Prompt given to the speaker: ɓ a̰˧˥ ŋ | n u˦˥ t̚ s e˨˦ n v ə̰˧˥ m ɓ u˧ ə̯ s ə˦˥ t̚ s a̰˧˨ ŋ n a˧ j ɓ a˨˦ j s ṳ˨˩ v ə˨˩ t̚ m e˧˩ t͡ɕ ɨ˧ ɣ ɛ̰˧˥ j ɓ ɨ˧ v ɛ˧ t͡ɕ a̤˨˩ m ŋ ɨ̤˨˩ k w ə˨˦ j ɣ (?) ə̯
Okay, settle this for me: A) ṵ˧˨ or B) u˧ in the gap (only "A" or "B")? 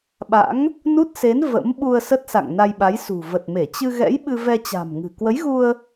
B